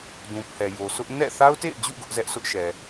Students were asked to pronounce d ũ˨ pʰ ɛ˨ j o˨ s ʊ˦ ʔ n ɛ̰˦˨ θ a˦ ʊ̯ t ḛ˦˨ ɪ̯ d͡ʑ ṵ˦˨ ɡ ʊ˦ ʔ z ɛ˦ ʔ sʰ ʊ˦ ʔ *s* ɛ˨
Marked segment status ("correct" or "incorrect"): incorrect